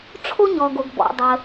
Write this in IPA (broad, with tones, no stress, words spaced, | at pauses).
ʈ͡ʂʰo˥ɲɔː˩ɡo˩ɡ bɔ̰˩dˤəː˩